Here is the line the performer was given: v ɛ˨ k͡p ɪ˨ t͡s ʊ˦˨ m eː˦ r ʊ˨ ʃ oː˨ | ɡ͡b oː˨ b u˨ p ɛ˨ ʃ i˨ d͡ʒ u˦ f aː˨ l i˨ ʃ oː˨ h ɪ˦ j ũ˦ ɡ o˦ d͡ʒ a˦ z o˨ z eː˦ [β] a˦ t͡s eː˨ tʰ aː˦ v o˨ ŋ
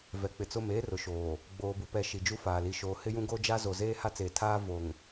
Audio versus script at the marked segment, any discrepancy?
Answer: yes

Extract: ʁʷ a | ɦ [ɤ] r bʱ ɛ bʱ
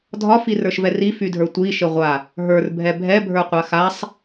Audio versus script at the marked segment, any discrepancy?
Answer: yes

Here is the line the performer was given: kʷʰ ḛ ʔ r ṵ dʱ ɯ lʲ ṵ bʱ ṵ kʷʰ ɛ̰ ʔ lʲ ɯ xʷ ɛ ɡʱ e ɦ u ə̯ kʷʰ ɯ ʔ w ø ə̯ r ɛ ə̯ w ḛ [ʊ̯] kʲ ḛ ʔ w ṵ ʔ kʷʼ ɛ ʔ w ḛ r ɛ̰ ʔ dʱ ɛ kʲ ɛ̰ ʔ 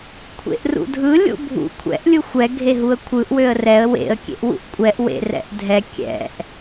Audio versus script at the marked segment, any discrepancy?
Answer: yes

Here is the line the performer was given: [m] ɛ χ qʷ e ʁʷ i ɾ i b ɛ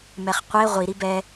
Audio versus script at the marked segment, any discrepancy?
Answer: no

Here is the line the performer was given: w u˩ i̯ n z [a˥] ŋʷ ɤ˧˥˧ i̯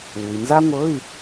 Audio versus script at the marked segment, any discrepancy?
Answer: no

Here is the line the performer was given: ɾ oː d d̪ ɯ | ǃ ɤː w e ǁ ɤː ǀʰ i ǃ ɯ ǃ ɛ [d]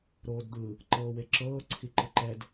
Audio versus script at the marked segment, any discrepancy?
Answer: no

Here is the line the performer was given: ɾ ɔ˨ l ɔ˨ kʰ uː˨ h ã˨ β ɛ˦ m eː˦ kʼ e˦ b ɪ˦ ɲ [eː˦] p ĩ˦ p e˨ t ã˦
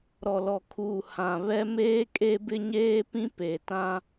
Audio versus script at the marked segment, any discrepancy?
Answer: no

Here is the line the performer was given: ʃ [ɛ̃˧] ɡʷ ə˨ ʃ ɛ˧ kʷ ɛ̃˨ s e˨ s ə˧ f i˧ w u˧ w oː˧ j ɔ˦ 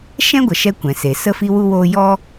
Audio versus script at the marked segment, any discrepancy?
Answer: yes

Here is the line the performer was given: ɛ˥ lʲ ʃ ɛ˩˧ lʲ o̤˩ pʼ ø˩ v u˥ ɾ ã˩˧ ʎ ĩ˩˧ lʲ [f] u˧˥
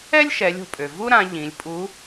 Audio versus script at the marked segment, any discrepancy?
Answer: yes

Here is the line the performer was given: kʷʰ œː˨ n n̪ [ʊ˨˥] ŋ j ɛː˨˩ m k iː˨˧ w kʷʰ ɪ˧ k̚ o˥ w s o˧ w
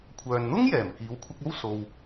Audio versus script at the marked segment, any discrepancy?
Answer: yes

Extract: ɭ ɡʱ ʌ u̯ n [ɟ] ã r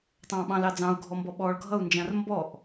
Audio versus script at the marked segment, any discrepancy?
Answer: yes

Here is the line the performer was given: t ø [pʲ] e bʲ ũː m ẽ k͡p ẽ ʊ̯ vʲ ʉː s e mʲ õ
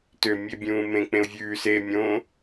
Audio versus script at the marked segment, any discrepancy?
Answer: yes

